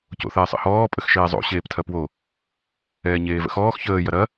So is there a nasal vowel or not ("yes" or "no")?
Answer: no